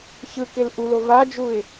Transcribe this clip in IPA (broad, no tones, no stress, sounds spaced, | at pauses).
ç ɯ k ɪ l ʔ u l o v a d͡ʒ u ɪ̯